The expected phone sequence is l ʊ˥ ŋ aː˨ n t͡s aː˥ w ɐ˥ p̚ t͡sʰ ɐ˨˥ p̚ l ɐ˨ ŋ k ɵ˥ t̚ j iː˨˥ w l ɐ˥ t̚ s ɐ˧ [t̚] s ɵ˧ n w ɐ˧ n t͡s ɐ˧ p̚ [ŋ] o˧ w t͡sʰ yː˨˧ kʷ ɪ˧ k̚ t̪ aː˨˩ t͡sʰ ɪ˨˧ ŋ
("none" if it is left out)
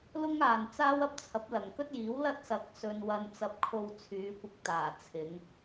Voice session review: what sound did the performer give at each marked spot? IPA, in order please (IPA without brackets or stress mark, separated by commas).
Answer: k̚, kʰ